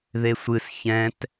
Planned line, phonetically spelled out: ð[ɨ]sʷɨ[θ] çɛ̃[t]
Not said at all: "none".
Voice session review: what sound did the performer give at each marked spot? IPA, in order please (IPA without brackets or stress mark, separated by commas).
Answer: e, s, t